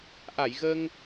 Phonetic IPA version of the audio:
ʔ a˧˩ j ɣ əː˧ ŋ

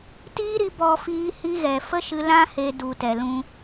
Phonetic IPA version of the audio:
t iː˦ ɾ i˧ b ɔ˧ f iː˧ h i˧ ɣ ɛ˨ f ə˦ ʃ ɨ˧ l ã˦ h e˧ d u˨ t ɛ˨ l ũ˧

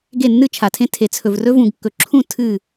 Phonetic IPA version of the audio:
ɡ e˦˨ nː ɨ˦ t͡ʃʰ a˨ tʰ ẽ˦ tʰ e˨ t͡sʰ ɵ˨ v r ɵ˦ v ũ˨ ɡ kː ɵ˨ ǁʰ ũ˦˨ tʰ ɨ˦˨

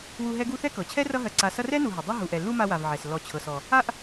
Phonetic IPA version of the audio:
w u˦ ɦ ɛ˥ ɡ u˥ θ ɛ˥ k ɤ˩ t͡ɕʰ ɛ˥ r ʌ˦ ɦ ɜ˨ ǀ a˨ s ʌ˦ r ɛ˥ n u˨ ɦ ʌ˩ dˤ ʌ˦ ɦ u˩ ʔ ɛ˩ lː u˦ m a˦ w a˨ v ʕ ɛ˩ s lː ɔ˨ t͡ɕʰ ɤ˩ s ɔ˩ | a˦ ʔ

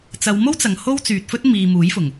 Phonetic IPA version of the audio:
t͡s ɐ˨˧ w m o˥ w t͡s ɐ˨ ŋ h o˥ w t͡s yː˨ t̚ f ɵ˥ t̚ m iː˨ m uː˨˥ j f ʊ˨˩ ŋ

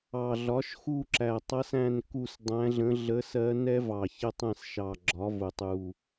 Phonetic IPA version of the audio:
ɑ˨˩ ɮ ɒ˩˥ ʃ x u˦˨ ǁ æ˨˩ tˤ ʌ˧˥ s æ̃˦˨ n k u˦˨ s dˤ æ̃˧˥ ɮ ə̃˧˥ ɮ ə˧˥ s ɜ˧˥ n ɛ˧˥ v ɑ˨˩ ç ə˦˨ tˤ ɛ̃˦˨ s ʃ ɑ˨˩ ɡ͡ǁ ɒ˩˥ v ʊ˨˩ tˤ u˨˩

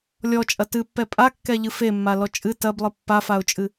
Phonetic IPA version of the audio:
lʲ ɔ t͡ʃʼ ɐ t ɨ pː ɛ pʼ a kː ɛ ʎ ɨ f e mː a l ɔ t͡ʃʼ ɨ t ɐ b lˠ ɨ pː a f a ʊ̯ t͡ʃʼ ɨ

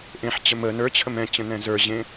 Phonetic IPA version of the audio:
ʔ ẽ ħ t͡ɕ ə m ə n ə˞ t͡ɕʰ ə m ɛ̃ t͡ɕ ə̃ n ɛ̃ z ə˞ ʑ ẽ

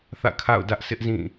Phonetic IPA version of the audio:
θ ä̰˦˨ kʰ a̰˦˨ ʊ̯ d ä˦ ʔ sʰ ɪ˦ ʔ z ĩ˦˨

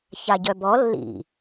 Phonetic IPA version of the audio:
ç a ɟ œ b ɔ lː ḭ

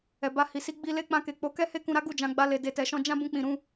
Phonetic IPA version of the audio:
ɛ˨ b a˧ h i˨ s i˧ ɡ͡b i˧ l e˧ k͡p ã˧ k e˨ k͡p o˨˦ k ɛ˦ h e˦ k ũ˧ ɾ a˦ ɡ u˦˨ d͡ʒ ã˨˦ ɡ͡b a˧ l e˨ d e˨ t ɛ˨ ʃ ɔ̃˧ d͡ʒ ã˦ b ũ˧ k͡p ĩ˨ ɾ ũ˧

